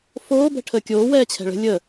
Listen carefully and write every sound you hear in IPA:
foː bɛ̤ʈʰəːkʲoː wɛːt͡ɕʰɛ̤ɭə̤ lʲə

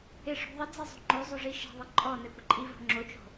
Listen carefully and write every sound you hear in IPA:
ɪʂo̤ ðˤəd͡zɛzˤo̤ ŋ͡ǃozˤoʐi ʃɛ̤ðˤɪ ǃʼɔ nɛkʷəǃʼi vo̤ŋ͡ǁot͡ʃo̤

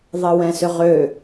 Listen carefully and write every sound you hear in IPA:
ðˤəwɛ̃sʏʁø

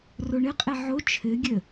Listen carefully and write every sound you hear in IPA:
roɳɘqʼɛ ʕo t͡ʃʰɘɡʲə

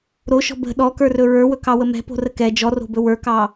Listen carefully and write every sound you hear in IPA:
ɾoʃɔ̤ bə̤ ɗɔkə˞rɵ ɹə˞wɵkɑwə mɛ̤po̤rə kɛ d͡ʒɔro̤bɵ wə˞kɑ

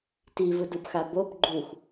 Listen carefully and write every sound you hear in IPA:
tivɯdubxa bob ɡ͡ǃux

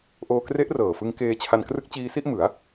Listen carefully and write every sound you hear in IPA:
ʔoː˧ kre˦˥ʔ rɤː˨˩fɯ˧ŋ keː˧t͡ɕʰa˧n krɯ˦˥k̚ t͡ɕiː˧si˥˩ʔmɯ˩˦a̯

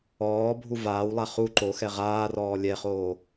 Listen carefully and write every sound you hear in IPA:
ɔːbʱu vaːwlˠa χu ǃoxɛ ʁaːrɔː lʲɛχoː

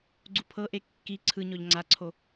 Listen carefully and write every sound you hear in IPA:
ɡ͡ǀupʰɤʔe kːi ǀʰɯɲɔʎ ŋ͡ǀaǀʰo

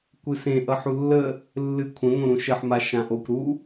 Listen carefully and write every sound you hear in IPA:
kʷɨsẽ ʔʌħulːə | lːɨkʷʰə̃ ŋõɾũʃəħ maʃãʔokʷ ɾu

